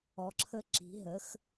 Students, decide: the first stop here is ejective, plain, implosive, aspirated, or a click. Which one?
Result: click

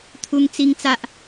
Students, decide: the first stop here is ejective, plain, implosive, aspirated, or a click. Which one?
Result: aspirated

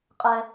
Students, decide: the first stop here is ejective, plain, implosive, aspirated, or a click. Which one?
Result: ejective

